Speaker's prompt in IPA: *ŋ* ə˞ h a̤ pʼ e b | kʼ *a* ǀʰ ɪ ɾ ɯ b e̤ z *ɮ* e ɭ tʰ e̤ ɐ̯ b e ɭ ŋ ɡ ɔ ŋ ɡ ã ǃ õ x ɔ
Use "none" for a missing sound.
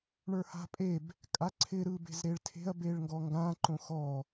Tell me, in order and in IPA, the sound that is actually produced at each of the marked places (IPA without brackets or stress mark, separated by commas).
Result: ɳ, a, ɾ